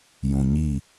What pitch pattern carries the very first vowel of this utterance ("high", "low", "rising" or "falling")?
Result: low